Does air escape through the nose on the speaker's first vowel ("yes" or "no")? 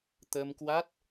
no